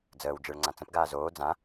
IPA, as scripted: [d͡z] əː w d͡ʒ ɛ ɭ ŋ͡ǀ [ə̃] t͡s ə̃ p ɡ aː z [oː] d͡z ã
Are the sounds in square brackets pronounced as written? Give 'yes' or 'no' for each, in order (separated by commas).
yes, no, yes